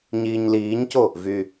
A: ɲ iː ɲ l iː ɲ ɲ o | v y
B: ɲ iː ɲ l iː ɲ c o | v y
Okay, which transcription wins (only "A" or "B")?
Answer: B